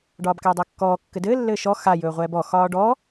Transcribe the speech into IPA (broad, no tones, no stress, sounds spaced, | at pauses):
ɖ ɒː b k æ dˤ a kː ɔː kː ɘ d ɘː lː ɘː ʃ ɔ x a j ɵː ʁʷ ɛː b ɔ x ɒː ɖ ɔ